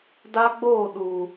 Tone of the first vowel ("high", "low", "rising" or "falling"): high